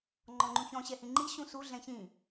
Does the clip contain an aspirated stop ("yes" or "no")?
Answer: no